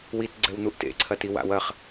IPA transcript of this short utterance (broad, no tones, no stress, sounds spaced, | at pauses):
w i t ɡ͡ǀ ɛ w n̪ u ʔ t ḛ ǀʰ ɐ t i w a̰ w ɐ χ